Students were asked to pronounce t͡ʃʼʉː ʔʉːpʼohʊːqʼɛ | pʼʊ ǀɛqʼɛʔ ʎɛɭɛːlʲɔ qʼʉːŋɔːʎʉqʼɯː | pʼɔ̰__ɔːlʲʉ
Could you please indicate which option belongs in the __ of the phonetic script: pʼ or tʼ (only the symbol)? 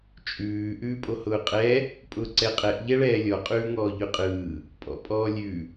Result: pʼ